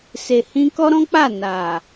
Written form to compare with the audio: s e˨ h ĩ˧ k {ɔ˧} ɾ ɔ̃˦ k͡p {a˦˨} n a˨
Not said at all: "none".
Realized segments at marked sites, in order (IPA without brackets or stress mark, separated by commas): ɔ˦, a˦˨